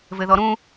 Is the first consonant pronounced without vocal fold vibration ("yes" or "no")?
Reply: no